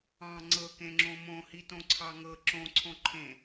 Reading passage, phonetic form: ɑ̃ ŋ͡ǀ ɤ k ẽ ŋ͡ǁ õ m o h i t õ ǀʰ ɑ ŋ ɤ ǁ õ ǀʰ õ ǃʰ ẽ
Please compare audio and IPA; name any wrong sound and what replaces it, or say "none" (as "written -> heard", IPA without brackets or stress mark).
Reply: o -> õ